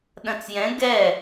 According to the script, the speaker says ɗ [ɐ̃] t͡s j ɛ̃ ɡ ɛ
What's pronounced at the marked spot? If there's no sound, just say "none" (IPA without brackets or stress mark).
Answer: ɐ̃